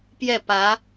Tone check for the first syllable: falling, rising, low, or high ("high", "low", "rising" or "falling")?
falling